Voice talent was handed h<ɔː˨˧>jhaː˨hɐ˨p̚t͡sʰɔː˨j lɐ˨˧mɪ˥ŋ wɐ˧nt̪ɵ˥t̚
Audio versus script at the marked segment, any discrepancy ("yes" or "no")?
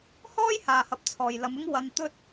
yes